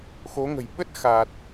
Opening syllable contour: rising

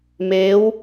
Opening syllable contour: rising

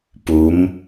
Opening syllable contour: rising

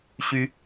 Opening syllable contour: high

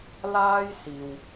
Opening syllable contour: high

